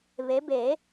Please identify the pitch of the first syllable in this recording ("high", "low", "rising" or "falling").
rising